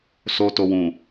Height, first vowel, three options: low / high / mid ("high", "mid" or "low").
mid